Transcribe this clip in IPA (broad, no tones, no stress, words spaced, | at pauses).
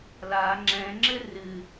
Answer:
la ŋ͡ǁɛ̃ŋ͡ǁɘ rɨ